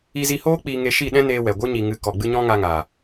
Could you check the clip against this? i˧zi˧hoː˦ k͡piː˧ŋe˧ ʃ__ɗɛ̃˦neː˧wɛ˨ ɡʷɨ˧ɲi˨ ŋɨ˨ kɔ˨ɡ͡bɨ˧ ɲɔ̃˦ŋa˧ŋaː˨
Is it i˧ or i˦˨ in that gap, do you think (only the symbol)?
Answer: i˦˨